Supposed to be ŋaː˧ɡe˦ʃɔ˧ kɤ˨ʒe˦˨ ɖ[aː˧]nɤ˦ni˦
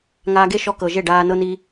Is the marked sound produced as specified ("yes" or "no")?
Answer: yes